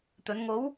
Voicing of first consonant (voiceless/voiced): voiceless